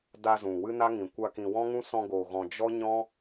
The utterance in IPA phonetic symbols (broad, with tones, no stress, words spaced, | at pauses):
da˧zũ˨ wɨ˦na˦ ŋĩ˨kʷa˧ kĩ˨wɔ̃˦ŋũ˦ sɔ̃˧ɡoː˨ɣɔ̃˨ d͡ʒɔ˦ɲɔ̃˦